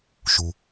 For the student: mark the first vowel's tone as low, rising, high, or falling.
low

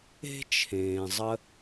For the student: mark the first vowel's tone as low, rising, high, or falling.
high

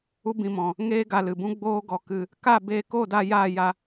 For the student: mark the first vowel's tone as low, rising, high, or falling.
high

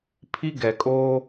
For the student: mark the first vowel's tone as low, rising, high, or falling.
high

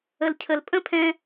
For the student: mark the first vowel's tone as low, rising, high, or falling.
low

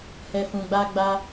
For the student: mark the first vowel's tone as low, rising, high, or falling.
low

